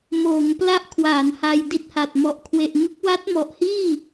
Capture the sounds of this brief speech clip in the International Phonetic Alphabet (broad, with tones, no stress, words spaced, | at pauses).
moː˩˦ŋ pla˥˩ʔ kʰwa˩˦n ha˧jdi˦˥t̚ha˨˩t̚ mɔ˨˩ʔkʰwe˨˩ʔŋɯ˦˥k̚ wa˦˥t̚mɔ˨˩ʔhiː˥˩